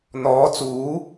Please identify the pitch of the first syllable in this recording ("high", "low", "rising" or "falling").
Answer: rising